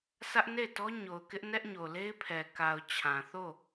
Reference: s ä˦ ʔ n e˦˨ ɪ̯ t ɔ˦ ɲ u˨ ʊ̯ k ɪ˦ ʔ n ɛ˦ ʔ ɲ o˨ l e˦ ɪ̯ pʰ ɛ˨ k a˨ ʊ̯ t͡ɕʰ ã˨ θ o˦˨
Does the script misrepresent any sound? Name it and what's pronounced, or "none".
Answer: u˨ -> o˨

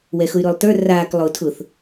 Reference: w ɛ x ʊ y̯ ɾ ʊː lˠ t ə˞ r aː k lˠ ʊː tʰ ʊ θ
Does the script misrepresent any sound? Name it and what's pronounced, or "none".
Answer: none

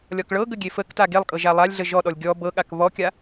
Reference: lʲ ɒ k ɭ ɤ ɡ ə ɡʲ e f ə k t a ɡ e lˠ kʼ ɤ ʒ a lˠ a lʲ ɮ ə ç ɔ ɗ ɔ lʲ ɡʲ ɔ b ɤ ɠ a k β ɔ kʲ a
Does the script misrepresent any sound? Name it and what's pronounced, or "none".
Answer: ç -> ʒ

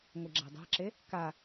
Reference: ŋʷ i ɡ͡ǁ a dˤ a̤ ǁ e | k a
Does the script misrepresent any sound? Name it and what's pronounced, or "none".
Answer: none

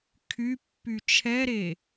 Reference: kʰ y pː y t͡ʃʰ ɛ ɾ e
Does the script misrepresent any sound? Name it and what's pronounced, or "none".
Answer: none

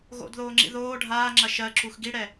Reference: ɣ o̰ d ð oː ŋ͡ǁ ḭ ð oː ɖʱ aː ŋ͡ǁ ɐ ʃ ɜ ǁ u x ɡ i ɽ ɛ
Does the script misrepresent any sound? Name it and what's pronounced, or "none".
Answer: none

